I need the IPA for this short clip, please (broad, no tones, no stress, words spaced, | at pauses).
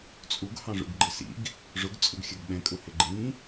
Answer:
t͡sʼuɡ hɑ̃ʐṵɡɡ͡ǃɪsḭɡ | ʐʊɡ t͡sʼʊɡxʲʌɡɓɛ̃kʼʊ hɪɡ͡ǃĩ